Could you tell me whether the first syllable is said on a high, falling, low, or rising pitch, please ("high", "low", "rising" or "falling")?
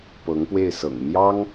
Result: rising